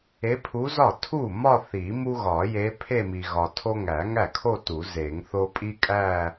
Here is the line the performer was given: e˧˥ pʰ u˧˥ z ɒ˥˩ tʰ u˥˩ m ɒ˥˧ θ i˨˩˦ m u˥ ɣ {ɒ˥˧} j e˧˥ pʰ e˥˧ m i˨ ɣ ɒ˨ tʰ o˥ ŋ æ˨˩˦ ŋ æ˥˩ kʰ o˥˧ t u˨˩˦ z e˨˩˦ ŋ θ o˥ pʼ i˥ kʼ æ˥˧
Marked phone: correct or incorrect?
incorrect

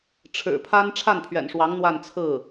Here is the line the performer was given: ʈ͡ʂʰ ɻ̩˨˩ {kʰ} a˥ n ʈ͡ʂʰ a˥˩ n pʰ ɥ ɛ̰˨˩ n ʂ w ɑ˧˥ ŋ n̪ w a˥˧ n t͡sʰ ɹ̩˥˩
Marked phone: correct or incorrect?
incorrect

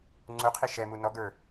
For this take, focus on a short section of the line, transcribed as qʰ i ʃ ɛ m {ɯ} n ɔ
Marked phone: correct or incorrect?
incorrect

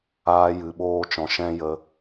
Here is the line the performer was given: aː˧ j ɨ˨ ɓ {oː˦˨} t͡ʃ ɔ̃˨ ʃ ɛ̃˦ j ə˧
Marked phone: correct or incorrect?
incorrect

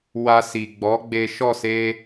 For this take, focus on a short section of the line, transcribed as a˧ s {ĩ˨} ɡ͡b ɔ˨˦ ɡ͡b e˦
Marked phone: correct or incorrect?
incorrect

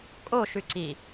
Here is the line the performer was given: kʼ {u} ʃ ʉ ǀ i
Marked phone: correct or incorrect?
incorrect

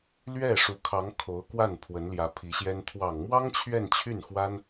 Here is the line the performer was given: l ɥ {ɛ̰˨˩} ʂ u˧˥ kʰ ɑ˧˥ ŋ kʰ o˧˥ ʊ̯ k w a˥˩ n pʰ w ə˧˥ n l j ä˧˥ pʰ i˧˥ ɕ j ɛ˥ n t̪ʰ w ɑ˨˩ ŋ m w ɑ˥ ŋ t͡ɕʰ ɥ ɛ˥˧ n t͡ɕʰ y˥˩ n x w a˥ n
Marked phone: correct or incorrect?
incorrect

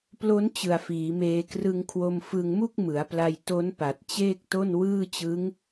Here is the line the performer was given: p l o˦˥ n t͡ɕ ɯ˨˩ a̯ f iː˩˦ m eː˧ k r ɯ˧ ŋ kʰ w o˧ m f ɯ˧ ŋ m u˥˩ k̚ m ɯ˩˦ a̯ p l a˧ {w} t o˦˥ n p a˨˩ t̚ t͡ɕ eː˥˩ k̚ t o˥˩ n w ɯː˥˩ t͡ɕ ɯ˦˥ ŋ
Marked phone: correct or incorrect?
incorrect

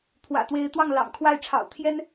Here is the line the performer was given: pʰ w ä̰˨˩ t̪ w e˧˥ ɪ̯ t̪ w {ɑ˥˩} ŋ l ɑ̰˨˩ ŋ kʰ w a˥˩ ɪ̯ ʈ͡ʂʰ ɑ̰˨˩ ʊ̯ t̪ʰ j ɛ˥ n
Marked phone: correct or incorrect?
correct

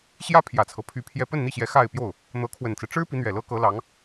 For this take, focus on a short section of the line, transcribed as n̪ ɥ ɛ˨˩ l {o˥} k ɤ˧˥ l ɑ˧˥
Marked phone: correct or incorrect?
incorrect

